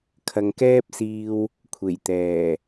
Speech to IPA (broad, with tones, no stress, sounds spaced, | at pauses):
kʰ ɐ˨ ŋ k ɛː˥ p̚ s iː˧ w | kʷʰ e˨˩ j t̪ ɛː˨˩